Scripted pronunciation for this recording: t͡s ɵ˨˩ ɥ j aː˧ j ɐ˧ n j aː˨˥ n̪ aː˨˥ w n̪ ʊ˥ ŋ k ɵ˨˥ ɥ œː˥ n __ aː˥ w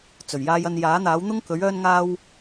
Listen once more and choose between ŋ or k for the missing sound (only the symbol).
ŋ